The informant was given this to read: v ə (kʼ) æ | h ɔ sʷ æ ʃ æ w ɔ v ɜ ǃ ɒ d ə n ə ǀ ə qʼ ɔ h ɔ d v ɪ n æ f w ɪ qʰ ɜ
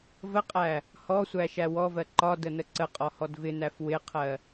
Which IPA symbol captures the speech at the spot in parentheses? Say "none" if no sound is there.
qʼ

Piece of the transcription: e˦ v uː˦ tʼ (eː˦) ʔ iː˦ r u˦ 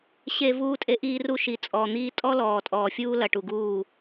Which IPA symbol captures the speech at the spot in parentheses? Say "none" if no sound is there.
e˦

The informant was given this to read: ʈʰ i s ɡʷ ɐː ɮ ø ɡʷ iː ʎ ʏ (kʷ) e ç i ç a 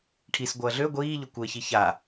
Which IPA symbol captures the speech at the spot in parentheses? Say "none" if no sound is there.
kʷ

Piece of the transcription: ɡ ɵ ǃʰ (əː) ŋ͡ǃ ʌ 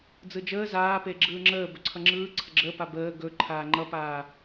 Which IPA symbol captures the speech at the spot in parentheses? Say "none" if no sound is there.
aː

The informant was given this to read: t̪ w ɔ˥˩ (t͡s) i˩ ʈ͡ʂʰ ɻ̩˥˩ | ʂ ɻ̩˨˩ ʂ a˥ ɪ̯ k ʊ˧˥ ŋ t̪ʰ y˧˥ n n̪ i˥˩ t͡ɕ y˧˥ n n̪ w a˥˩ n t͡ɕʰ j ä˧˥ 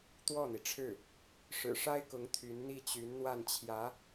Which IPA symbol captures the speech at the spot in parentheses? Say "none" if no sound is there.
n̪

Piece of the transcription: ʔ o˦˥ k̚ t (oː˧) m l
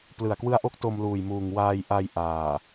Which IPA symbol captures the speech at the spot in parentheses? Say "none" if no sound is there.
o˧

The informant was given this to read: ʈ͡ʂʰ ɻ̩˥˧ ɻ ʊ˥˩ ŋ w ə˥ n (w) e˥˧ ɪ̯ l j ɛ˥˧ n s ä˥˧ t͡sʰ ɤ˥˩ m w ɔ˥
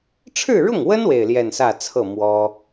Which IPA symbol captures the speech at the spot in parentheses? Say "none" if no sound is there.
w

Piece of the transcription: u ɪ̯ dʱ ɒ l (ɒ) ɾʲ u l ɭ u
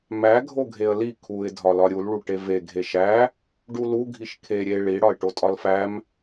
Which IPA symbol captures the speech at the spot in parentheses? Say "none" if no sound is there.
ɒ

